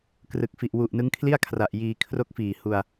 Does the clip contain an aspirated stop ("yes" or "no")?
yes